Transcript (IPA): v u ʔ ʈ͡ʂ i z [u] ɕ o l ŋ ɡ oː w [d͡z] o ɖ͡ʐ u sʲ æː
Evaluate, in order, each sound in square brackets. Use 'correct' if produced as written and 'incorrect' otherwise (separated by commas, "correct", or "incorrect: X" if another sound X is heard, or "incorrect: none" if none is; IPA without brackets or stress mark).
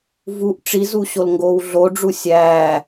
correct, incorrect: ɮ